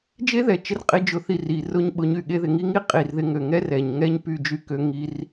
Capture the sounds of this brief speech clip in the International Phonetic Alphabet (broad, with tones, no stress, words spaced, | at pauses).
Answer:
d͡ʒe˦ðɛ˨t͡ʃɪ˧r qʼi˦d͡ʒʊ˧θi˦˨ ri˨rʊ˦ɲɓʊ˧ɲy˦˨ ɠe˧ðɪ˨ŋi˦ŋi˦ qʼi˨rðɪ˧ŋø˨ŋɛ˦ rɛ˨ɲ ŋɛ˦ɲpy˦˨d͡ʒy˦kø˧ ŋi˧r